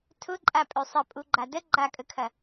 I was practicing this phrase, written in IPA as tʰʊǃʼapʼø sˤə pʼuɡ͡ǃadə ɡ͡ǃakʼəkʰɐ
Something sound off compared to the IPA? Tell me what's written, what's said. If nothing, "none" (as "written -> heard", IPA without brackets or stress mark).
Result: none